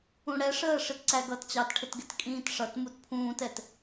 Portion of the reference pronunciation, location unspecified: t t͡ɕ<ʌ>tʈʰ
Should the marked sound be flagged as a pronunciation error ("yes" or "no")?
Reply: yes